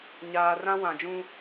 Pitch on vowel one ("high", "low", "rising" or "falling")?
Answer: low